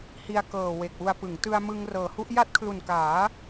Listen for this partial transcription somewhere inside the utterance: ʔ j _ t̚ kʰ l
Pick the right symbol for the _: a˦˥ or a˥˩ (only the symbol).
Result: a˥˩